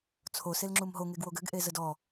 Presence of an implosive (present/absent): absent